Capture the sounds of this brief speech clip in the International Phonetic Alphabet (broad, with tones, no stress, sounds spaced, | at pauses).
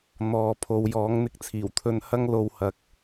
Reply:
n̪ ɔː˨˧ pʰ o˨˧ w j ɔː˨˥ ŋ n̪ ɪ˧ k̚ t͡sʰ iː˨˩ w t̪ʰ ɵ˧ n h ɐ˥ ŋ l o˧ w h ɐ˨ k̚